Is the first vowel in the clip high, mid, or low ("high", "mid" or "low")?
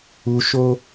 high